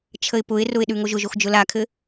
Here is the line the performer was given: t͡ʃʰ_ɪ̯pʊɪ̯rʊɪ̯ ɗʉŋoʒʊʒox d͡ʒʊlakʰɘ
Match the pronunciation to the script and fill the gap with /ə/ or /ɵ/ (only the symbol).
ə